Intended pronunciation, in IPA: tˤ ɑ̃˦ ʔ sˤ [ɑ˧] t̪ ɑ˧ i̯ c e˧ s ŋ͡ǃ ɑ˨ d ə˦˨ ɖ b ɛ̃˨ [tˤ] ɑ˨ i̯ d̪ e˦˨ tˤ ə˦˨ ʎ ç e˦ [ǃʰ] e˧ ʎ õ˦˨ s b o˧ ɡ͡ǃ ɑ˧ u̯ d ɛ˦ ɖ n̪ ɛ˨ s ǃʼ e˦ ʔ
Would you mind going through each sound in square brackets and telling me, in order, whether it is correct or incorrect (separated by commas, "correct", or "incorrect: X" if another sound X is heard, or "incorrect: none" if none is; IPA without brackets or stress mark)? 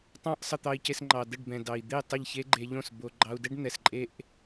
incorrect: ə˧, incorrect: d, incorrect: ɡ͡ǃ